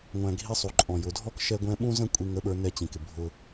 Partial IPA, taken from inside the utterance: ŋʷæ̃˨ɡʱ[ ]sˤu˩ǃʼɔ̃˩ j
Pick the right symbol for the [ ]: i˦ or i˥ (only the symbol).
i˦